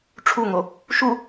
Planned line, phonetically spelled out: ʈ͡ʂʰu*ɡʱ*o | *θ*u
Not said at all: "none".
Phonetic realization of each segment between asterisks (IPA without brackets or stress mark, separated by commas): ŋ, ʃ